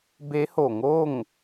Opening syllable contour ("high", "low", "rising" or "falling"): rising